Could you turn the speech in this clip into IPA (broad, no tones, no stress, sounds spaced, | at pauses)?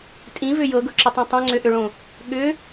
tʼ ĩ v ʏ j ɤ ɡ ɤ ǁ ʏ tˤ õ tˤ õ ŋ͡ǀ ʏ ʔ ʏ ɭ õ | ɠ ʏ